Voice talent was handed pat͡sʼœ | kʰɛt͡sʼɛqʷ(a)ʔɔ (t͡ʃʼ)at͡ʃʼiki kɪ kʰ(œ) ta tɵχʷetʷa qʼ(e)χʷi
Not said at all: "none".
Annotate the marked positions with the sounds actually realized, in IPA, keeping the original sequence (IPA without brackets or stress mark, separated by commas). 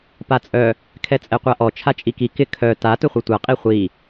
a, t͡ʃʰ, œ, i